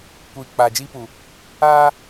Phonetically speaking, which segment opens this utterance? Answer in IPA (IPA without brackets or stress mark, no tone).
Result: kʷ